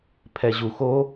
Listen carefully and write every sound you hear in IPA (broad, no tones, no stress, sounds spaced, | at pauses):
pʰ ɛ ʑ u x o